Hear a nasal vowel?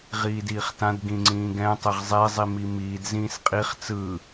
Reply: yes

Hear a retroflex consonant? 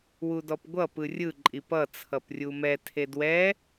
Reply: no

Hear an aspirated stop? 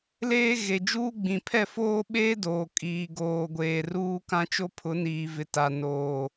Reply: yes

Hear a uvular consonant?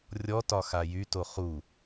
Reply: yes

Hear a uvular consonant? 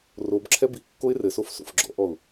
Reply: no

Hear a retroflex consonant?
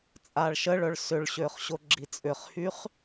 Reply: yes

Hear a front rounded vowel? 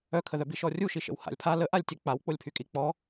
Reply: yes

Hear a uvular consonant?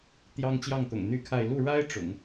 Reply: no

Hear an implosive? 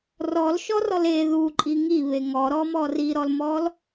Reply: no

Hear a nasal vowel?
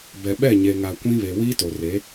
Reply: yes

